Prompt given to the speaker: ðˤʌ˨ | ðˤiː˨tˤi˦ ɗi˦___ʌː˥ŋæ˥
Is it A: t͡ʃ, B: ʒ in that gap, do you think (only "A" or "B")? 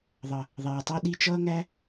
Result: A